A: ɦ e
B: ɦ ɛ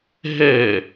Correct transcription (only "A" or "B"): B